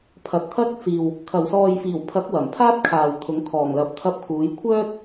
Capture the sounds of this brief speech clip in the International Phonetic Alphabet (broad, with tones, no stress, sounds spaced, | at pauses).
pʰ ɐ˨ t̚ t̪ʰ ɐ˥ k̚ t͡s iː˨ w | kʰ ɐ˨˩ w s ɔː˨ j f iː˨˩ w pʰ ɐ˨˥ k̚ w ɐ˨˩ m pʰ aː˥ t̚ kʰ aː˨ w t̪ʰ ʊ˨˥ ŋ kʰ ɔː˨˩ ŋ l ɐ˨ p̚ t̪ʰ ɐ˧ p̚ kʰ uː˨˧ j kʷʰ œː˥ t̚